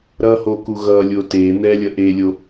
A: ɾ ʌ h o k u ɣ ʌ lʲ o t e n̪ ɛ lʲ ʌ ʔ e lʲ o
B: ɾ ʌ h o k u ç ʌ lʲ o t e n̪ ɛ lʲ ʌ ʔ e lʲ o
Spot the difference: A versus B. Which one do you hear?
A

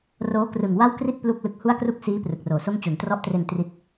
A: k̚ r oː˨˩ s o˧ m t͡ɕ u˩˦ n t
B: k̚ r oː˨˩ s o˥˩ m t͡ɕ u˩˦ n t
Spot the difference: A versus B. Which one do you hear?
B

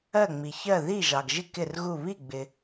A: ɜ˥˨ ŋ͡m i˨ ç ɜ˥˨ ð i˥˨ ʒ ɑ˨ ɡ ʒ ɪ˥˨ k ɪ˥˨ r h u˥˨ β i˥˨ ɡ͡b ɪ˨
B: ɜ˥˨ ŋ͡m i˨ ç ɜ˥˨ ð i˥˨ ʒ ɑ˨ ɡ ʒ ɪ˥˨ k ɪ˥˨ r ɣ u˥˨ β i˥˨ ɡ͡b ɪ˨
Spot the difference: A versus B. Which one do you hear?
B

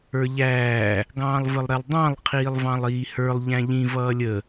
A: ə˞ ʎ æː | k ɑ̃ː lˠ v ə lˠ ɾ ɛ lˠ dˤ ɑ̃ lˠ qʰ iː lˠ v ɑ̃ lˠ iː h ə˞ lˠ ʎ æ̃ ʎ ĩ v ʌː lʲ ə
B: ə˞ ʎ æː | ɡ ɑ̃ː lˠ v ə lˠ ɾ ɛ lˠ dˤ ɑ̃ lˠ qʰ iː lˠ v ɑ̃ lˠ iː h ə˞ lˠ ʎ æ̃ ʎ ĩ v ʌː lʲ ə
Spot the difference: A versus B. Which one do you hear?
B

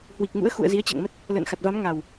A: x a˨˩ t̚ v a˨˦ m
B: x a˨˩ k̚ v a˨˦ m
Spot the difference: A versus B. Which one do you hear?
A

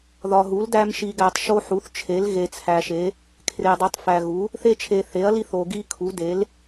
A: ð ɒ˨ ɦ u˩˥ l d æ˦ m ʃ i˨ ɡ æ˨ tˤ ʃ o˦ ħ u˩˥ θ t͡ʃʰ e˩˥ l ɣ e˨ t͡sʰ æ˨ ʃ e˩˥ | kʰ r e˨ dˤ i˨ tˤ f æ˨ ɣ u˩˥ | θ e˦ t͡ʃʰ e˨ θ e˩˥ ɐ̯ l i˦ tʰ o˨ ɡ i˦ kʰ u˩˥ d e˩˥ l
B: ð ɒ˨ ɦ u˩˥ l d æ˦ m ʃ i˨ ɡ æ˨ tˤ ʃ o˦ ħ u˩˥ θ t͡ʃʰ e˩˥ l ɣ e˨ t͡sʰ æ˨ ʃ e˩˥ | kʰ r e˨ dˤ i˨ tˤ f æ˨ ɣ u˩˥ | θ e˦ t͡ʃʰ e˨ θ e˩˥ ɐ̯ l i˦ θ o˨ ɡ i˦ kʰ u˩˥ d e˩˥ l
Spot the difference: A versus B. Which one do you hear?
B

